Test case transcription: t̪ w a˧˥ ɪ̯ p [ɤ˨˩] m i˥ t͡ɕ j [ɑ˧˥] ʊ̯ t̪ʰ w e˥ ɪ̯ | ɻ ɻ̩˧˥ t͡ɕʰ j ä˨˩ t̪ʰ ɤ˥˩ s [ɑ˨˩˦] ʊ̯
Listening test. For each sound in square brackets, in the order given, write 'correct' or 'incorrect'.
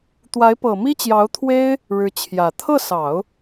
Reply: correct, correct, correct

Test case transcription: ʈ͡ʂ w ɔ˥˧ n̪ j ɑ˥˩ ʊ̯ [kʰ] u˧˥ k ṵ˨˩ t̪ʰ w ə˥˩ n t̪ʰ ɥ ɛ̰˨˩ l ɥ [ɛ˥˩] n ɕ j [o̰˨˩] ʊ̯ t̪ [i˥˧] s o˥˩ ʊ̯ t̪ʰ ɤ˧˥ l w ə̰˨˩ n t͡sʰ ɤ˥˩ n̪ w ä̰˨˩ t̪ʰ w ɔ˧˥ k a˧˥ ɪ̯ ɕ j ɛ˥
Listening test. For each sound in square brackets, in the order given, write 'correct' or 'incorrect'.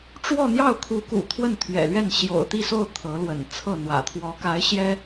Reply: correct, correct, correct, correct

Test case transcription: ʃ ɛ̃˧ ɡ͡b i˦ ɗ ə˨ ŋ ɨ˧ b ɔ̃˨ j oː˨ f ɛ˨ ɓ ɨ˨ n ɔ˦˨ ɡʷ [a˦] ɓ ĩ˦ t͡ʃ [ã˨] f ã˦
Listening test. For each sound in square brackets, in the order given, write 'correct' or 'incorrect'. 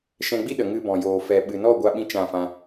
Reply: correct, incorrect: ã˦˨

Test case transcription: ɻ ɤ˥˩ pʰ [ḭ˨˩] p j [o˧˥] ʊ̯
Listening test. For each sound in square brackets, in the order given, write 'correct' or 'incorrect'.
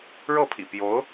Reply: correct, correct

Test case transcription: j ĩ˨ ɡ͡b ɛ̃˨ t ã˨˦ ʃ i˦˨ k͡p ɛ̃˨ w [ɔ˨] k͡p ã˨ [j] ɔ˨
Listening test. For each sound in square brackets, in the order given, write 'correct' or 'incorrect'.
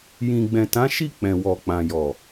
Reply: correct, correct

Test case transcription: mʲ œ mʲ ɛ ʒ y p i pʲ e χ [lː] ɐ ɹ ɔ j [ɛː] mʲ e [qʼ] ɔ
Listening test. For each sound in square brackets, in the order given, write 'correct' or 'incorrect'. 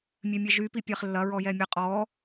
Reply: correct, incorrect: ɛ, correct

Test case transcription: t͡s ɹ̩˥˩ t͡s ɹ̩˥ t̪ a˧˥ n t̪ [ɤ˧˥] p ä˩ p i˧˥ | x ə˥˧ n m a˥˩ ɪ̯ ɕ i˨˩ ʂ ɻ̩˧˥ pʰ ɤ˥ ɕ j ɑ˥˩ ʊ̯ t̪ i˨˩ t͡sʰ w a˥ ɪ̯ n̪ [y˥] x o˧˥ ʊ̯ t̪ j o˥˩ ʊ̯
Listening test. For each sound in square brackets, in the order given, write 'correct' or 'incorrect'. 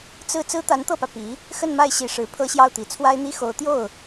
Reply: incorrect: ɤ˥˩, incorrect: i˥

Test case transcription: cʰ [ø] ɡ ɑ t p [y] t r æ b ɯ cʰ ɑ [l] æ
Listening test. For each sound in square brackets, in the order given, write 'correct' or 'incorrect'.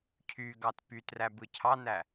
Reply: incorrect: y, correct, incorrect: n

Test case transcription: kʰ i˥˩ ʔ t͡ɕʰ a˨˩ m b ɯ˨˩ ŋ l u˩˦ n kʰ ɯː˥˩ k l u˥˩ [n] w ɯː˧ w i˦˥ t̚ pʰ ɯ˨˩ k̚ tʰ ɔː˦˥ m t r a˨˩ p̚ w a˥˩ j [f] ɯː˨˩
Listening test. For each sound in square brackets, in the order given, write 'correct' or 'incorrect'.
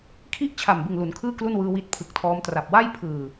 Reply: correct, incorrect: pʰ

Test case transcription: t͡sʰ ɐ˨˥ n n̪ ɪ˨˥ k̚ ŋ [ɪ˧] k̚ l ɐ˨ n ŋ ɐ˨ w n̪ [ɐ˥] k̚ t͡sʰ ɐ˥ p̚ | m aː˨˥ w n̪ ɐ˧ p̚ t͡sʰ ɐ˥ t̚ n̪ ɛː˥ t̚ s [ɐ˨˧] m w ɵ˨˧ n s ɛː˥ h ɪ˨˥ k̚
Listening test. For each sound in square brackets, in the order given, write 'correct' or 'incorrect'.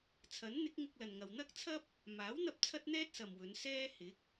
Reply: correct, correct, incorrect: ɐ˨

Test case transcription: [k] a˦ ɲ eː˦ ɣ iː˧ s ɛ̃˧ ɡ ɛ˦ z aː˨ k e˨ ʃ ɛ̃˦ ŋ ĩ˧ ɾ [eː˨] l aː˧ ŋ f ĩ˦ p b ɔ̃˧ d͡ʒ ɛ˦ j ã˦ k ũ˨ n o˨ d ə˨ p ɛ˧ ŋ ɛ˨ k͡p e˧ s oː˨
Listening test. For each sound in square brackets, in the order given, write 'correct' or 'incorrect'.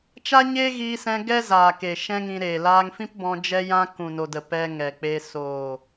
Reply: incorrect: t͡ʃ, correct

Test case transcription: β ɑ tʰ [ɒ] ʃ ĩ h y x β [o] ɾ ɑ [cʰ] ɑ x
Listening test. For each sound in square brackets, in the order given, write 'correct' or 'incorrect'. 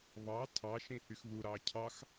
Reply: incorrect: ɑ, incorrect: u, correct

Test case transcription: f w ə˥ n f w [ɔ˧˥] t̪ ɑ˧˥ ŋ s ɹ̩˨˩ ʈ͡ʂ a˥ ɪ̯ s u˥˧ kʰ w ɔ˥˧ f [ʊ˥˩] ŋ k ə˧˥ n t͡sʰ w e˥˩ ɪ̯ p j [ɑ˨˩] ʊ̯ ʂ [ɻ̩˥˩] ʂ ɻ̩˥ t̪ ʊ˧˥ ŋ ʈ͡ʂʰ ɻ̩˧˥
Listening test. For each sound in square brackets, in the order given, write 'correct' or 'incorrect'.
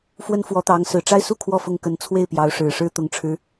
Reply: correct, correct, incorrect: ɑ˧˥, incorrect: ɻ̩˨˩

